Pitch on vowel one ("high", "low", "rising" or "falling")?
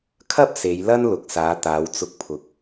high